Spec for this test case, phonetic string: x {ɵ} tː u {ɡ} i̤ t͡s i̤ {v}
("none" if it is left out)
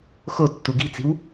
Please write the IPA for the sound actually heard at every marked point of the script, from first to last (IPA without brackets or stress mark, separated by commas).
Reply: o, ɡ, w